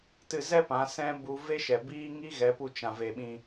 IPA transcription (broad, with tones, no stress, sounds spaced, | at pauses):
t ɨ˧ z ɛ˦ p ã˨˦ s ɛ̃˦ b u˦ v e˦ ʃ ɛ˨ b iː˦ ŋ i˦ ɣ ɛ˨˦ p u˧ t͡ʃ ã˨ v e˨ ɓ ĩ˧